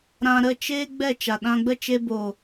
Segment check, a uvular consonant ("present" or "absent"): absent